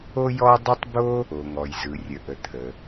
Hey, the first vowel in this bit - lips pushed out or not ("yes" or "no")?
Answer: yes